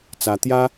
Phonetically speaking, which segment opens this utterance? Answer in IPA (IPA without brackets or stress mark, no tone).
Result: t͡s